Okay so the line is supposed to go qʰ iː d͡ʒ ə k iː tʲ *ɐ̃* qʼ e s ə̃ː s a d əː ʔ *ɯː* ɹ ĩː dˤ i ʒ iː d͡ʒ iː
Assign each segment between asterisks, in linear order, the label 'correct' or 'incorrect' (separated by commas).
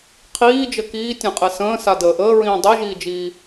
incorrect, incorrect